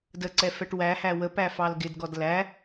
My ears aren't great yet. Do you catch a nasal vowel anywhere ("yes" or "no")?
no